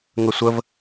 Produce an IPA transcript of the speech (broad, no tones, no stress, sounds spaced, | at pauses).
ŋ ə sʷ ə v